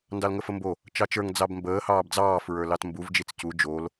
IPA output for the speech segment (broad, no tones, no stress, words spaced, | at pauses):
ndɑlŋəfəmbo | t͡ʃɑt͡ʃə˞ŋ d͡zɑbmbəː hɑːbd͡zɑː fɹə˞lɑtmbuv d͡ʒit͡scu d͡ʒol